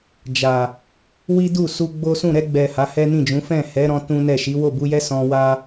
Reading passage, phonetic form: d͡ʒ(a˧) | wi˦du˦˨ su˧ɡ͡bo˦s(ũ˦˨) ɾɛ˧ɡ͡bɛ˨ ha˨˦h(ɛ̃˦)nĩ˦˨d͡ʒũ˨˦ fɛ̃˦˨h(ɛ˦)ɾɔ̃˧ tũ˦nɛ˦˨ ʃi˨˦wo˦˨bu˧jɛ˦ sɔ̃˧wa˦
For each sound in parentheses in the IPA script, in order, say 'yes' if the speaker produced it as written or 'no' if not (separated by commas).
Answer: no, yes, no, no